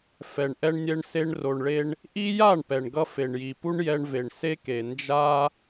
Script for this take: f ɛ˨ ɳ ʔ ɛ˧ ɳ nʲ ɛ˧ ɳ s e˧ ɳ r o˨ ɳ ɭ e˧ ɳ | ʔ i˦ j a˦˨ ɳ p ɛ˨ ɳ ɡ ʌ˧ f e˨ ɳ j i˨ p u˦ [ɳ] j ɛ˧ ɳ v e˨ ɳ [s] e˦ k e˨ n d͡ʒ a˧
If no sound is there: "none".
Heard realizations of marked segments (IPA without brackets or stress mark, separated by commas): ɳ, s